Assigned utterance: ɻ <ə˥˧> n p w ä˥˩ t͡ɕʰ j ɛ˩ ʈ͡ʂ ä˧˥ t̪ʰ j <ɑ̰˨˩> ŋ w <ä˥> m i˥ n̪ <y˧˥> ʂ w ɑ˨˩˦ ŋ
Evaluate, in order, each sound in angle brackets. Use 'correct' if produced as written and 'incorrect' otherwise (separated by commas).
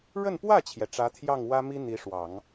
correct, incorrect, correct, incorrect